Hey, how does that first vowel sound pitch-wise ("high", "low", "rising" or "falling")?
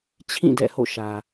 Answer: falling